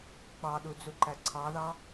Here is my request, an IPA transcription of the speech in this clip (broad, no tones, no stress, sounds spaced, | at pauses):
k͡p ɑ ɗ u d͡z u ǃ æ ǀʰ ɑ ð ɑ